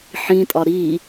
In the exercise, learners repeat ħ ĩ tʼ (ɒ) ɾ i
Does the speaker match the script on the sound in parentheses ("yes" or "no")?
yes